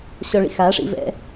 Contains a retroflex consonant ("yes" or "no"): yes